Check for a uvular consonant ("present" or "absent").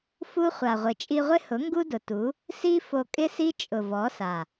present